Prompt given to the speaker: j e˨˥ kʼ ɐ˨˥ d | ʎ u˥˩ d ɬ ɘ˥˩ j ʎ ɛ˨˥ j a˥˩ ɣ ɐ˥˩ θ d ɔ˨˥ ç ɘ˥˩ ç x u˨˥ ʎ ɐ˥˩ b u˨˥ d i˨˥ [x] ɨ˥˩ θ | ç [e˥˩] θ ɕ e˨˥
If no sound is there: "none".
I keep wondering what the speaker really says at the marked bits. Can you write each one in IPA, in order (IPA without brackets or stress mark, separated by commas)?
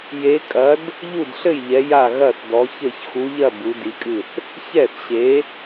kʼ, ɛ˥˩